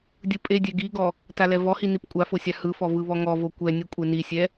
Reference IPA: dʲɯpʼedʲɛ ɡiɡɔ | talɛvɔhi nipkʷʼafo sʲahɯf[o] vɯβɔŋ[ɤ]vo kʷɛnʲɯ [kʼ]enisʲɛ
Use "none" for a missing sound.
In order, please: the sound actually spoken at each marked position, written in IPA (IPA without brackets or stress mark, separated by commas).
ɔ, ɔ, kʷʼ